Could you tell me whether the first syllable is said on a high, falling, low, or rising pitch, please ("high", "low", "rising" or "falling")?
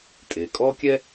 low